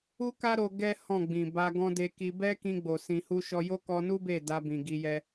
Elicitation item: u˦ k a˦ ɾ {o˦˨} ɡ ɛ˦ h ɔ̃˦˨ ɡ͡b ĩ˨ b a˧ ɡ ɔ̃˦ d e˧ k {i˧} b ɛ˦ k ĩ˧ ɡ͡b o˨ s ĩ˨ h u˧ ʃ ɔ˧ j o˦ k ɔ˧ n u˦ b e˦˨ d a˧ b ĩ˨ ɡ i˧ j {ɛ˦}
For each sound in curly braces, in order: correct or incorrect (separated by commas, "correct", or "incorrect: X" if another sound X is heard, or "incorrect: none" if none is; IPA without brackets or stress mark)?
incorrect: o˧, correct, correct